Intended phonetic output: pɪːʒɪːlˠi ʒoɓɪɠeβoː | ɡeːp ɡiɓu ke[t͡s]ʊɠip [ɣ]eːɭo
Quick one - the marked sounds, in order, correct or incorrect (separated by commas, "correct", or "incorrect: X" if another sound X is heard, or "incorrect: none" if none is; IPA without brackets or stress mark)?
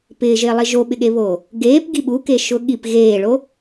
incorrect: ʃ, correct